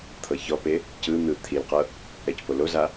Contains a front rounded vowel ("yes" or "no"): no